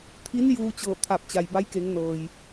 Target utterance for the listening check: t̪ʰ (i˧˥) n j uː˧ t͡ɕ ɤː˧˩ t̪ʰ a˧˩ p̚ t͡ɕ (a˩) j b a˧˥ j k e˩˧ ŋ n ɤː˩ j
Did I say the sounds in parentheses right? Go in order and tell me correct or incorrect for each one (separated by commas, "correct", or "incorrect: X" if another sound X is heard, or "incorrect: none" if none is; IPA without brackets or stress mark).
correct, correct